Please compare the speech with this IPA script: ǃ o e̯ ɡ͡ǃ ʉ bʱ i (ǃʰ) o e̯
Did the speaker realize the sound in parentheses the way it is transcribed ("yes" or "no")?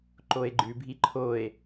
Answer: yes